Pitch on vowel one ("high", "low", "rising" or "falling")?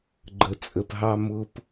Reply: low